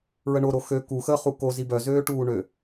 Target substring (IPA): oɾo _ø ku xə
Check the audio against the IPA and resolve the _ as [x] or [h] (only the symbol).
x